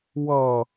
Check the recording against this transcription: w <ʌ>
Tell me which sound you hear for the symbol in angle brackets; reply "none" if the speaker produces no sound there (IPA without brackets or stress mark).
ʌ